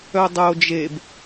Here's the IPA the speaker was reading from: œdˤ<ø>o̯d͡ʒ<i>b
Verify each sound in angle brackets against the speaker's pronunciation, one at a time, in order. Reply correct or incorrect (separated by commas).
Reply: incorrect, incorrect